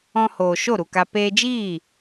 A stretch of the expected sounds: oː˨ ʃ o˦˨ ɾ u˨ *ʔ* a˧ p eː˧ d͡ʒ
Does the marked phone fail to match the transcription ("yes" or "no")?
yes